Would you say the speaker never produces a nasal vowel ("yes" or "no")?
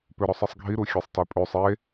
yes